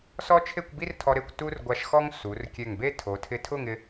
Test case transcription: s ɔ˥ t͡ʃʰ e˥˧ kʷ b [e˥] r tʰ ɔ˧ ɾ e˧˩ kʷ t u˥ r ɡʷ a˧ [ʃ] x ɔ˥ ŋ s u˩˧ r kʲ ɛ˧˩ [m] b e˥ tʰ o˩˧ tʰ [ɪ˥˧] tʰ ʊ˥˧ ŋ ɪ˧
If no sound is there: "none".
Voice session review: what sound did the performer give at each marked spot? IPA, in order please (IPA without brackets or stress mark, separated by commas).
i˥, ʃ, ŋ, ɪ˧